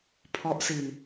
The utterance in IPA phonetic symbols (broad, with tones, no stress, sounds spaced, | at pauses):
pʰ ɔ˦˥ ʔ s i˧ n